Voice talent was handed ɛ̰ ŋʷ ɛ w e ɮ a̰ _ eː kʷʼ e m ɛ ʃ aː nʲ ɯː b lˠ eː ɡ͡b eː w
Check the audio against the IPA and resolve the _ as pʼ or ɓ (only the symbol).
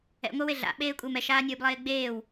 ɓ